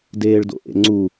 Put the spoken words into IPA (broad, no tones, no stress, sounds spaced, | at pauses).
d eː ɭ d o̰ ʔ ḛ ŋ͡ǀ u